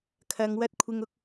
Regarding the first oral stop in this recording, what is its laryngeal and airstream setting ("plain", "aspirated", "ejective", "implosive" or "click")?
aspirated